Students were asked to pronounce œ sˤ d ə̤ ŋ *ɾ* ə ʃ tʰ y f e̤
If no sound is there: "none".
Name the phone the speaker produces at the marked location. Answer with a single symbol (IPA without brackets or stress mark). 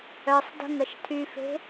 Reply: ɾ